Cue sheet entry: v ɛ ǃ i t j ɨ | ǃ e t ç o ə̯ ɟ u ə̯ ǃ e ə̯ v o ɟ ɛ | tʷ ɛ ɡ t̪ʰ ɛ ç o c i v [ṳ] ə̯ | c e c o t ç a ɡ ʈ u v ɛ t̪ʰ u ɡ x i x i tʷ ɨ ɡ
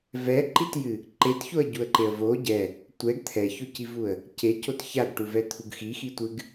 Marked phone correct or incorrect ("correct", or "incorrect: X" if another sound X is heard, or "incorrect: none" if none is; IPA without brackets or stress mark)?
incorrect: u